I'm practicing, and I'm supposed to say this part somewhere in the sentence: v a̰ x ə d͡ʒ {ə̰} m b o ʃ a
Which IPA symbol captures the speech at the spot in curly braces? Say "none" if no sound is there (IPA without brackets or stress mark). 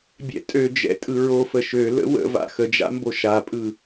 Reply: a̰